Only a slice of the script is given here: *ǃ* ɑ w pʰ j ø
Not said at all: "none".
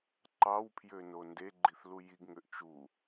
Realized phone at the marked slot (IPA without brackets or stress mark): ǃ